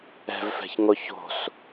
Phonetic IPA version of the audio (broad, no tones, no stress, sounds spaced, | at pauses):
ɛ̤ v f ɛ̤ ç ŋ o ç o̤ s